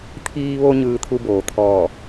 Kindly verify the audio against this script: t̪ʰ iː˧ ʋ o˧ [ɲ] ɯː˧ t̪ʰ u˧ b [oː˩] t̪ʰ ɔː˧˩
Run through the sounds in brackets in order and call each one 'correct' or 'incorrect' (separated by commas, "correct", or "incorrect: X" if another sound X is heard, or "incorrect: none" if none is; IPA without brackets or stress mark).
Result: correct, correct